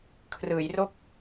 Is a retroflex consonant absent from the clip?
yes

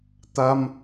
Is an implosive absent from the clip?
yes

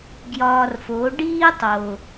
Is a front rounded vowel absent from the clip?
yes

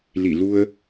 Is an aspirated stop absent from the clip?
yes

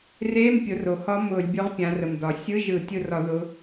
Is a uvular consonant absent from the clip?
no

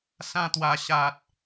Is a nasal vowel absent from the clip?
no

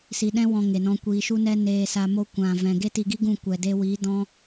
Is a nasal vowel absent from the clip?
no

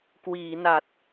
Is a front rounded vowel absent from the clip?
yes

